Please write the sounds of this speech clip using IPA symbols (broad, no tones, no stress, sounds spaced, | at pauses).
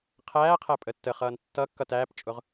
qʰ æː qʰ æ pʼ ə tː ə χ ʌː n tː ʌ kː ʌ t æː p t͡ʃʼ ʊ ʁ